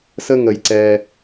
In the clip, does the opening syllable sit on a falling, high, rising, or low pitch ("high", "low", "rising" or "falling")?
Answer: high